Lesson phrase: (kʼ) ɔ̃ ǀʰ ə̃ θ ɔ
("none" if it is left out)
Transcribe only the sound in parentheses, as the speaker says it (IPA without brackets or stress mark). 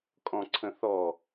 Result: kʼ